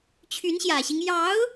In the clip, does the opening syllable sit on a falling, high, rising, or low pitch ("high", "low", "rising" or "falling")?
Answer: rising